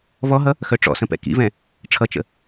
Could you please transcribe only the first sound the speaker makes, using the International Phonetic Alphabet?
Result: v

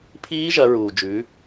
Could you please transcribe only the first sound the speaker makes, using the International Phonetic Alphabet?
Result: pʰ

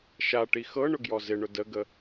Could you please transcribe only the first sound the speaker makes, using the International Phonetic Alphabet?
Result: ʃ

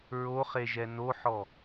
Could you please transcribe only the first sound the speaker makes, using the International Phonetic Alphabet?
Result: ɹ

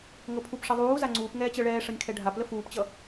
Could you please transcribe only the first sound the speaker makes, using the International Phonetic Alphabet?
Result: ŋ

